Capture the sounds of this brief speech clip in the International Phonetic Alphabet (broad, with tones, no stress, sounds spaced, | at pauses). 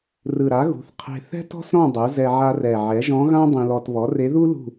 r ɯ˨˩ ɾ a˩˥ ɣ ṳ˩˥ θ qʰ e̤˧ θ ɛ̤˥ t ɔ̤˥ s ɾ ɔ̃˥˨ dˤ u˩˥ z ɛ˧ ʕ a˧ r ɛ˨˩ ʕ ɛ˩˥ ʒ ɔ̃˧˥ ɣ ã˥ dˤ ĩ˧ l ɔ˧ t β ɔ˩˥ r e˧˥ ð u˥ l ṳ˥˨